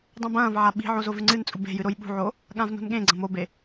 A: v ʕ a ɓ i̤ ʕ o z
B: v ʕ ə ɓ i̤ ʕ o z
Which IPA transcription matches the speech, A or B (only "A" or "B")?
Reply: A